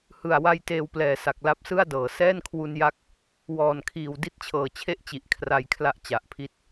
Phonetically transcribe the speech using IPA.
h ɯ˨˩ a̯ w a˧ j t eː˧ w p l ɛː˨˩ s a˨˩ k̚ l a˦˥ p̚ s ɯ˥˩ a̯ d ɤː˨˩ s ɛː˥˩ n kʰ w u˧ n j a˦˥ k̚ | w ɔː˨˩ n kʰ iː˨˩ w d i˥˩ t̚ t͡ɕʰ ɤː˨˩ t͡ɕʰ e˥˩ ʔ t͡ɕ i˨˩ ʔ kʰ r a˧ j kʰ l a˥˩ ʔ t͡ɕ a˨˩ ʔ pʰ i˦˥ t̚

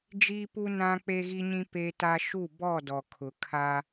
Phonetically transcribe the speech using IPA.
d͡ʒ iː˦ p u˦ n ã˦ k͡p e˦ ɣ i˦ ɲ ĩ˦ p e˦ t a˦ ʃ u˦˨ b ɔ˦˨ d ɔ˨ kʰ ʊ˨ kʰ a˦

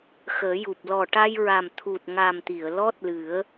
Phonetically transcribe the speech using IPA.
x əː˨˩˦ j u˨˩ p̚ l ɔ˨˩ ʈ a˧ j ɹ a˨˩ m t̪ʰ u˨˩ t̚ ŋ a˨˩ m t̪ i˨˩˨ ə̯ l ɔ˦˥ t̚ l ɨ˨˩˦ ə̯

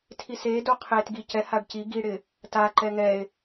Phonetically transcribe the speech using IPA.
tʰ i s e d o qʰ e t ɡ i c ɛ h a ɖ c i ɡ i ɽ ɪ | t a ǃ ɛ ŋ ɛ e̯

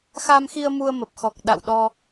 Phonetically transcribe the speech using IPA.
x a˧ m x i˧ ə̯ m u˧ ə̯ m ə˨˩ p̚ x ɔ˨˩ k̚ ɗ a̰˧˨ w ɗ ɔ˧

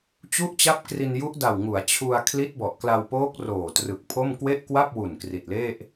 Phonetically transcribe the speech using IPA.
t͡ɕ u˥˩ ʔ t͡ɕ a˥˩ p̚ k r i˧ n j u˦˥ ʔ d a˨˩ w ŋ u˩˦ a̯ t͡ɕʰ u˧ a̯ kʰ l i˦˥ t̚ b ɔ˨˩ ʔ k l a˧ w p oː˦˥ k̚ r oː˨˩ t r ɯ˨˩ k̚ pʰ o˥˩ m k w e˥˩ ʔ k w a˥˩ p̚ w u˨˩ n k r i˨˩ t̚ l e˥˩ ʔ

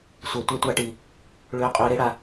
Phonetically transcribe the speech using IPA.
sʷ ɛ˨ tʷ ɛ˧ tʷ a˧ ʈ i˨ | ɭ ʏː˧ qʼ ʏː˧ ɾ e˦ ɽ a˧

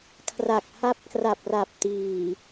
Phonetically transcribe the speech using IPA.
kʰ r a˨˩ k̚ h a˦˥ p̚ k r a˨˩ p̚ r a˨˩ p̚ t iː˨˩

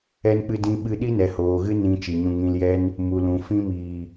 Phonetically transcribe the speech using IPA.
ɛ˧ n k͡p ɨ˧ d ĩ˧ ɓ ɨ˦ ɗ i˦ n ɛ˨ h oː˨ ɣ ɨ˦ n ĩ˧ t͡ʃ i˨ ɲ ũ˧ ŋ ĩ˧ l j ɛ˦ n | m u˨ l ũ˨ f ĩ˧ m iː˨

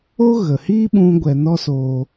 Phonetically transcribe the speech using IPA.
o˦ ɣ ə˨ h iː˦ ɓ ũ˧ ɡʷ ɛ˧ n ɔ˦ s oː˧

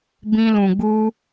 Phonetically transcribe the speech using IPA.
b ĩ˦ l ũ˧ ɡ͡b u˦

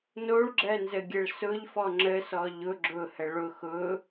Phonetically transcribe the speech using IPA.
n o ɭ ɡ͡ǁ ɜ n z ə ɡʲ ɘ ɭ s ʊ ʎ f ɔ ŋ͡ǁ ə s ɔ ʎ ʊ ɡ͡ǁ ʊ h ə ɭ ʊ x ʊ

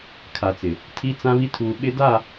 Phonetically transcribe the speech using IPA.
kʰ a˨ t͡s ɪ˨ | tʰ i˦ t͡s ã˦ β i˦ tʰ uː˨ ɓ ɪ˦ d a˦˨

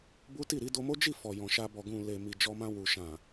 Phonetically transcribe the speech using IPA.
b u˦ t i˦˨ ɾ i˧ d o˧ m o˦ d͡ʒ i˦˨ f ɔ˨ j ɔ̃˨ ʃ a˧ b ɔ˨ ɡ ũ˨ l e˨ m i˨ d͡ʒ ɔ˧ m ã˧ w u˨ ʃ ã˨

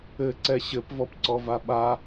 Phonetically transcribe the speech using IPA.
ɘ ǀ ɛ ɕ ɘ p v ɔ p ǀ ɔ v a ɓ a

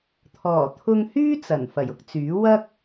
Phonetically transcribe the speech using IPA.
t̪ʰ ɔː˨˩ t̪ʰ ʊ˧ ŋ h yː˥ t͡s ɐ˨˩ n f ɐ˨˩ j ʊ˥ k̚ t͡s yː˨˥ w ɐ˥ k̚

